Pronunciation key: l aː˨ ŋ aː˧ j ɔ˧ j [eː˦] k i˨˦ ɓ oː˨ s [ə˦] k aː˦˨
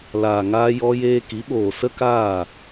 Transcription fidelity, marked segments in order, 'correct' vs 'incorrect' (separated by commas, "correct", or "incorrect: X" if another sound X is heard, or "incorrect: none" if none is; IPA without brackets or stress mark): incorrect: eː˧, correct